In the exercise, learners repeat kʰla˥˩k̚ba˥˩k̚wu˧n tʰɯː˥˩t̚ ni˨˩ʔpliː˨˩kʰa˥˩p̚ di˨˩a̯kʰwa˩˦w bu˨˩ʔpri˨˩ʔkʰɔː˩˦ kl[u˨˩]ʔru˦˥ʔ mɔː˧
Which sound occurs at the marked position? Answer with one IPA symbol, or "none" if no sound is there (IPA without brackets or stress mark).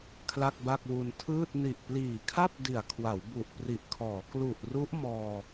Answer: u˨˩